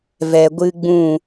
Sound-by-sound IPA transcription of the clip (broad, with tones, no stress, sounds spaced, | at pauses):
v ɛ˨ ɡʷ ɨ˦ ɡ͡b ũ˦˨